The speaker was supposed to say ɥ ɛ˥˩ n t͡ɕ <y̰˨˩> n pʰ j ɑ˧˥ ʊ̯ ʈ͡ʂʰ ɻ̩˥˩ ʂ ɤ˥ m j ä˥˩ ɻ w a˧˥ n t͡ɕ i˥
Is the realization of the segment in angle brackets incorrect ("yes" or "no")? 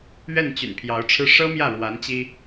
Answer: no